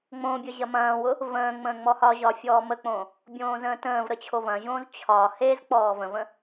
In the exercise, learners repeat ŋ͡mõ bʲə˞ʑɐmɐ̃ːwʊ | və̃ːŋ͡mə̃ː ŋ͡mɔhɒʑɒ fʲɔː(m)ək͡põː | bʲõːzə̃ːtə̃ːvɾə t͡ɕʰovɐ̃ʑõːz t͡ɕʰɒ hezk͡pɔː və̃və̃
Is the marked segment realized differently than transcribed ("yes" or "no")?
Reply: no